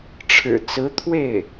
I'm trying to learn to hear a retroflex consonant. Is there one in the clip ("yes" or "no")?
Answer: yes